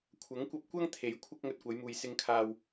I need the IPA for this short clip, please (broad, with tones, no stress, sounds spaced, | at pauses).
kʷʰ ɐ˨˥ ŋ kʷ ɐ˧ p̚ kʷ ɐ˥ ŋ t̪ʰ e˨˥ j kʷʰ ɐ˥ k̚ ŋ ɵ˧ t̚ kʷ ɐ˨˧ j m uː˨ j s ɪ˨˧ ŋ kʰ aː˨ w